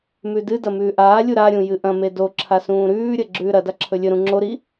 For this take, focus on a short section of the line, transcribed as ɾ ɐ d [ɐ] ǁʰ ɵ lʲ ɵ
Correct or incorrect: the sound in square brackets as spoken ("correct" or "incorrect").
incorrect